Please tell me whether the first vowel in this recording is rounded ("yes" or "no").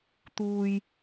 yes